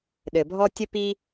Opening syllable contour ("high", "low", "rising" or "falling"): low